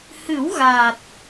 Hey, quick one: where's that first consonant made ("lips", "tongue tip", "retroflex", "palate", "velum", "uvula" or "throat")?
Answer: throat